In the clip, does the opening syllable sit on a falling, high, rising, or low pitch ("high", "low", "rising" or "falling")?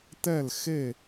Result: falling